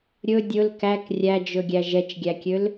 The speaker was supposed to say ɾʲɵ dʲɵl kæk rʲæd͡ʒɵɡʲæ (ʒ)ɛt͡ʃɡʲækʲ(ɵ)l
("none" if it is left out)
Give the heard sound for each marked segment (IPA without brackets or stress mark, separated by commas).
ʒ, ø